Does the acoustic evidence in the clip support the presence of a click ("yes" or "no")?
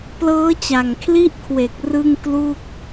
no